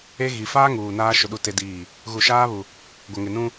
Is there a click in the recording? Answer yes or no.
no